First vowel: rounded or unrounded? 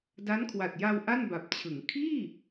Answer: unrounded